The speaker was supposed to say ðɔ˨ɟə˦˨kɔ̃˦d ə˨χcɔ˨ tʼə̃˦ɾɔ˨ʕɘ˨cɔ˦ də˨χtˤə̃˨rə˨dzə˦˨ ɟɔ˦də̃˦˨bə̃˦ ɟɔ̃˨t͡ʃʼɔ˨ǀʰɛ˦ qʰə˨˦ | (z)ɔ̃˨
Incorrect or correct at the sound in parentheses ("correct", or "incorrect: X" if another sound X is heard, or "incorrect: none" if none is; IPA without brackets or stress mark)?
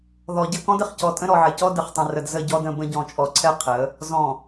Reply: correct